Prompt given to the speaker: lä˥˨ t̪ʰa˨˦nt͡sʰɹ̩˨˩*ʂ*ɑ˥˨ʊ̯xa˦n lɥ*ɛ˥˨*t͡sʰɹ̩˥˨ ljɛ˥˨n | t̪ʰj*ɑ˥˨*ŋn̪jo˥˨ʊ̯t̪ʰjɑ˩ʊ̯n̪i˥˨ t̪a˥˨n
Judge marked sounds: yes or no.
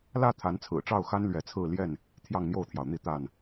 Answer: no, no, yes

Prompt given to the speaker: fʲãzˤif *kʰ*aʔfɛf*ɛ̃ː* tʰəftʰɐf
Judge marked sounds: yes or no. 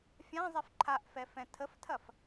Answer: no, no

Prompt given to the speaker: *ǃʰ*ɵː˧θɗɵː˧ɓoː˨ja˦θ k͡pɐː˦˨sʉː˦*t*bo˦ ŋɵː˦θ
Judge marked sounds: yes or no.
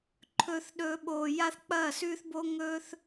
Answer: yes, no

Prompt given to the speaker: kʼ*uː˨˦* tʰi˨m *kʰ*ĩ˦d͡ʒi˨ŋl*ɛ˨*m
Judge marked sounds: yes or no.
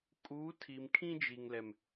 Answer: yes, yes, yes

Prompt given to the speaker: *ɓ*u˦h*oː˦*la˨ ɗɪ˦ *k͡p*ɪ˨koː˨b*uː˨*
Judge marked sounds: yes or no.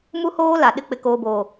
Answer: no, yes, yes, no

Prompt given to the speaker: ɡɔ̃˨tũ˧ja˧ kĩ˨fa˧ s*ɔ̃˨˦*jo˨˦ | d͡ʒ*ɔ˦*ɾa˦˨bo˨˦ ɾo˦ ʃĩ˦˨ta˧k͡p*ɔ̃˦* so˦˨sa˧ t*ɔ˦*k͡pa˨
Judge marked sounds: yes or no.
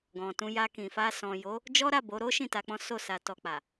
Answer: no, yes, yes, no

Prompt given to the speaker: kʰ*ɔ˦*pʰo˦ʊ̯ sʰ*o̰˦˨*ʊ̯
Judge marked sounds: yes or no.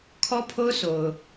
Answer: yes, no

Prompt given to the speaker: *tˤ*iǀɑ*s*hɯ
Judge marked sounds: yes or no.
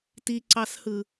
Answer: no, yes

